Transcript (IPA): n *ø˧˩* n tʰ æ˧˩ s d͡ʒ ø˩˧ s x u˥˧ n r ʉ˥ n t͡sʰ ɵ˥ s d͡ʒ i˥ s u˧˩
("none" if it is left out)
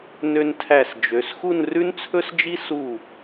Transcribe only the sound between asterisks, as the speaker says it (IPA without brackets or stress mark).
ø˧